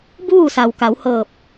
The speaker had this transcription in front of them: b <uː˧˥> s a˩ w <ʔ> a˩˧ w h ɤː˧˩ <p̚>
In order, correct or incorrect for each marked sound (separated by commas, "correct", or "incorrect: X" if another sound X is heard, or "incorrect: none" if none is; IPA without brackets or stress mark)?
incorrect: uː˥˨, incorrect: k, correct